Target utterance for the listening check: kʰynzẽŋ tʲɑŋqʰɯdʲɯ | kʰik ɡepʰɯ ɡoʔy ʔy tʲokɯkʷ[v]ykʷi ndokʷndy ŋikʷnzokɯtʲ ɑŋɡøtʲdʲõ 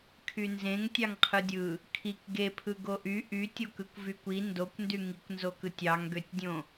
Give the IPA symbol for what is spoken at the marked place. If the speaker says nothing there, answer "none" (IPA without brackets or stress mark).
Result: v